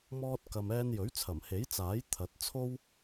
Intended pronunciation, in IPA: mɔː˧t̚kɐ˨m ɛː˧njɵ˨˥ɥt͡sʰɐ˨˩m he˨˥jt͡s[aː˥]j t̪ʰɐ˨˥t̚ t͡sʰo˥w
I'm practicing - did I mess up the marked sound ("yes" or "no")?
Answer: yes